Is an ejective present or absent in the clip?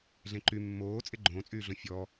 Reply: present